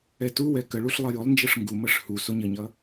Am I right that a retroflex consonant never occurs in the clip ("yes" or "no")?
no